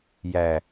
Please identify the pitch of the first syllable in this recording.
low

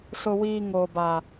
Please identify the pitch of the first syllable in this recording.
high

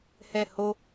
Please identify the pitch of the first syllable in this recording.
falling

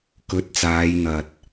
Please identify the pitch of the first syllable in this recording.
rising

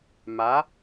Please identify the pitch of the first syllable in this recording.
rising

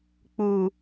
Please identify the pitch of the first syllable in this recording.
low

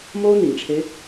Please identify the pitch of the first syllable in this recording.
high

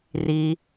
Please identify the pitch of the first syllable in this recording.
low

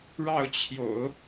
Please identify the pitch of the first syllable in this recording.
falling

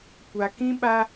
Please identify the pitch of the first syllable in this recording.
low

